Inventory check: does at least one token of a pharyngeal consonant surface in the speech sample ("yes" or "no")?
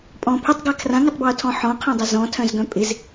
yes